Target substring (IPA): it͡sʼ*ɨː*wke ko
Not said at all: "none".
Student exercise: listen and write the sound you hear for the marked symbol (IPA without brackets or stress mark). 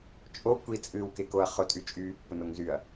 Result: ɨː